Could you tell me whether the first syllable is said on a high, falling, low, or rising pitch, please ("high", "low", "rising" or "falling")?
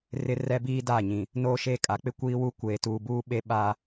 high